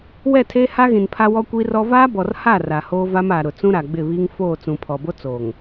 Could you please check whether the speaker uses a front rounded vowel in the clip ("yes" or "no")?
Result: no